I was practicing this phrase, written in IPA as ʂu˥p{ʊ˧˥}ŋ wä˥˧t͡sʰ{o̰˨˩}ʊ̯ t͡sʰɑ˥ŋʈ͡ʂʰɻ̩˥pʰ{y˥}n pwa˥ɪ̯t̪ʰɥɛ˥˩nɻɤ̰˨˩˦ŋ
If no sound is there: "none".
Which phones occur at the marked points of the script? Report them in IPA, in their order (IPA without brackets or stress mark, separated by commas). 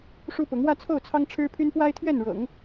ʊ˧˥, o˥˩, y˥